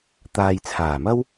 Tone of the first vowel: low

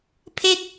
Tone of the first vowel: falling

